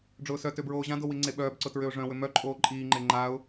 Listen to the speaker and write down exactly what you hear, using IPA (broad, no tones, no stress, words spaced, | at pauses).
ɖ͡ʐʊːsœtø bɹoːʑãdo wiŋ͡ǀeɓœːbǀʊ tɹʏʊ̯ʐœ̃wʏ mœǃʼoː ǃʼiːŋ͡ǃe ŋ͡ǃaʊ̯